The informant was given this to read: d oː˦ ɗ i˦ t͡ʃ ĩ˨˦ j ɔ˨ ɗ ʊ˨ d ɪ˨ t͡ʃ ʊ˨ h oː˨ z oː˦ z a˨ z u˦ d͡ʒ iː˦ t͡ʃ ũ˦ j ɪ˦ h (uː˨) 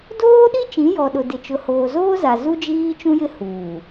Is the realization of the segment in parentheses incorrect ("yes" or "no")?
no